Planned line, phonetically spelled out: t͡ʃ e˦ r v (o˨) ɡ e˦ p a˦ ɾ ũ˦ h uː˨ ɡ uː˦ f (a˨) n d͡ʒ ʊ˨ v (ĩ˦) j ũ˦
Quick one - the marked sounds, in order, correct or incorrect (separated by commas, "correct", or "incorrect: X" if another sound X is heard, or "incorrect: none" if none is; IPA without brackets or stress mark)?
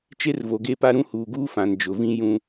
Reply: correct, incorrect: ã˨, correct